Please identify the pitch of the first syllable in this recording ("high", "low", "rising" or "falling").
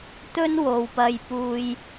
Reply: high